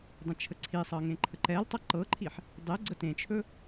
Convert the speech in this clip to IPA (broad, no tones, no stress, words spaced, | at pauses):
dˤə̃t͡ʃʰəǀʰisˤɤ ŋẽǃʰəǃɛltˤʌ ǃɤǃʰiħ | dˤe ɡ͡ǀətẽt͡ʃʰɵ